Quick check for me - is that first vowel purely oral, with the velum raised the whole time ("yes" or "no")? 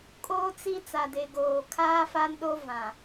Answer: yes